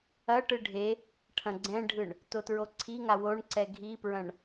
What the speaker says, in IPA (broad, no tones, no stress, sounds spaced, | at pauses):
ɐ ʈ ɯ ɖʱ e | ʈʰ ɐ̃ ɡ͡ǀ ɛ̃ ɖʱ ɯ ɳ | t o t ɹ o ǀʰ i ŋ a w o ɳ ǀ ɛ ɡʱ i p ɹ ɐ̃ ɳ